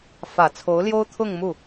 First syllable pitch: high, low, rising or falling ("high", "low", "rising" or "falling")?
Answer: low